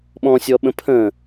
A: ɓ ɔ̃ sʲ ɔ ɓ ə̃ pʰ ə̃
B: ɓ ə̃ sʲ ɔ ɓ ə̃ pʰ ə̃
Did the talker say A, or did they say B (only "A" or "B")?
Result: A